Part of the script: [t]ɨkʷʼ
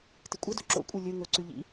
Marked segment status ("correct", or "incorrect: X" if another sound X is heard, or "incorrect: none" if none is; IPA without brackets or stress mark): correct